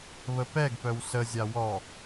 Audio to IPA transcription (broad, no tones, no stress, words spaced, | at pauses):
βəpɛɡpœw səzʲa wɔ